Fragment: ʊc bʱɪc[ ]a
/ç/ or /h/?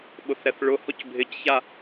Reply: ç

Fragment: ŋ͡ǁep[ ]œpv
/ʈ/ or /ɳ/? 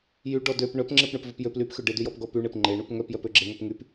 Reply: ɳ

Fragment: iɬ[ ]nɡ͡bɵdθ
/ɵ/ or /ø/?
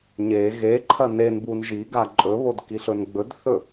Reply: ɵ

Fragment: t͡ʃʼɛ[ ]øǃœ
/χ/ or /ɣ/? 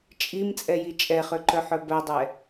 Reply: χ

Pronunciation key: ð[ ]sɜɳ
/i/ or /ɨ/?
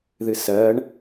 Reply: ɨ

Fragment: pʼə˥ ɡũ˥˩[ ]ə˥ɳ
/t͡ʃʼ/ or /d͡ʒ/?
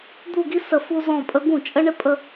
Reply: t͡ʃʼ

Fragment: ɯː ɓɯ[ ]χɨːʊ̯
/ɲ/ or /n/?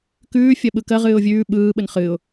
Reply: n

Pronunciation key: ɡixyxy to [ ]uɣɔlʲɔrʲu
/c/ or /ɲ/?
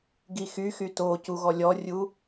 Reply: c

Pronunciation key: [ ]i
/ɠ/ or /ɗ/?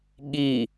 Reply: ɠ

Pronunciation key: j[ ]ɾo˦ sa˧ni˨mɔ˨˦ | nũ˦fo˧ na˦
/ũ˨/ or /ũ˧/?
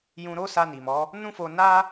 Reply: ũ˧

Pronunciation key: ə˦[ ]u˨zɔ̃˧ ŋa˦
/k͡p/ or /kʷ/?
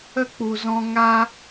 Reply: k͡p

